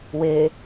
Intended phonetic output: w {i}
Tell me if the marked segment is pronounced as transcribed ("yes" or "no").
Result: no